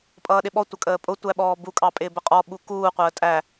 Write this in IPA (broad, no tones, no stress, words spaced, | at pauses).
pʼʌːɗɪɓɔ tʷʌkʼəːpʼʊ tʷæɓɔːbu kʼɑpʼɪːbəqʼɔ ɓukuː qʷəːtʼæ